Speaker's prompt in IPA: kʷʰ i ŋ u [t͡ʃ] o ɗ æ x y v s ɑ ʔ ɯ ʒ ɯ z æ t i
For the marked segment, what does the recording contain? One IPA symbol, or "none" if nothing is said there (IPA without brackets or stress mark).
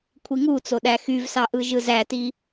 t͡s